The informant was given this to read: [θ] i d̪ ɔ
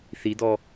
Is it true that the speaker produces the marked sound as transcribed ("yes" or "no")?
yes